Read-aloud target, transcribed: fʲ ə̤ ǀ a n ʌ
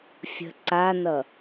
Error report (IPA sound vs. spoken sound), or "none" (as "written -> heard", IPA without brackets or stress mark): none